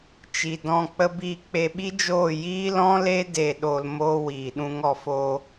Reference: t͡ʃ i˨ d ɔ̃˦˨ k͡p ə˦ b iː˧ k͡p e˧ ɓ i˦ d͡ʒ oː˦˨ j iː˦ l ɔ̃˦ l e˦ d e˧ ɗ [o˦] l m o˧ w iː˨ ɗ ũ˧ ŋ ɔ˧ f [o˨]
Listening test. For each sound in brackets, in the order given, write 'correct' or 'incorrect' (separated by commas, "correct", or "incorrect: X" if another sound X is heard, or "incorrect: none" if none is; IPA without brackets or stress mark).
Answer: incorrect: o˧, incorrect: o˧